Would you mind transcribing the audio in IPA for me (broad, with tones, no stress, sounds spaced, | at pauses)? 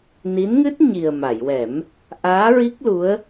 n i˧˥ n ŋ ɨ˦˥ t̚ ɲ i˨˩ ə̯ m a˨˩˨ j w ɛ˨˩˦ m | ʔ aː˧˥ ɹ i˦˥ k̚ l u˧˥ ə̯